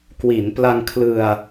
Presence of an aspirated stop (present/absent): present